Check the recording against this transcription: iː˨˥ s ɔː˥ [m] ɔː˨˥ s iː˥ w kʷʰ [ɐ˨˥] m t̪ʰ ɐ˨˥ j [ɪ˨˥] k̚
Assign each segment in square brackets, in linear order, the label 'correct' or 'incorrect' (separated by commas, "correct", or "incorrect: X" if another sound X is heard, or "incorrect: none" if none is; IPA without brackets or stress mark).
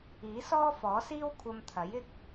incorrect: f, incorrect: ɐ˧, incorrect: ɪ˥